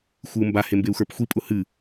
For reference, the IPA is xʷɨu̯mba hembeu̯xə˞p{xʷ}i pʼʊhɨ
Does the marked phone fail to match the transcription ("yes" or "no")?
no